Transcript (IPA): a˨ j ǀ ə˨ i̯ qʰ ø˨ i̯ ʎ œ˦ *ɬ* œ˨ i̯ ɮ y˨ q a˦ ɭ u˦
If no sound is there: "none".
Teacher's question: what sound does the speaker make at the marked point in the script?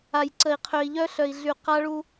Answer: ɬ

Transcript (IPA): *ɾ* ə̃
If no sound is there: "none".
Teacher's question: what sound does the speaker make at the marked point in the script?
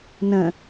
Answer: n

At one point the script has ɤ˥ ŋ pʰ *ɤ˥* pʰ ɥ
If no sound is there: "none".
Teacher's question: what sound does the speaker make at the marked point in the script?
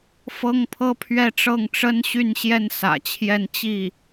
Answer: ɤ˥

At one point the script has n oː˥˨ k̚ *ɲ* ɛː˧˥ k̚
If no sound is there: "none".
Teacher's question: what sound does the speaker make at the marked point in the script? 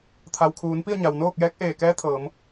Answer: j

